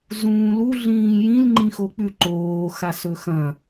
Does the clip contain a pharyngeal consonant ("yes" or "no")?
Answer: no